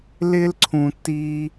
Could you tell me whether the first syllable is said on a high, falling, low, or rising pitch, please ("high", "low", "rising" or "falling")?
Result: high